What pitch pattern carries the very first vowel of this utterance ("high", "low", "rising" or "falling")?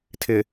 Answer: low